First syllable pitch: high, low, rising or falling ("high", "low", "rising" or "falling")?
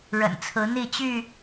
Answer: low